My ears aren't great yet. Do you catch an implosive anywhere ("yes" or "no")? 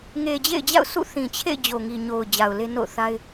no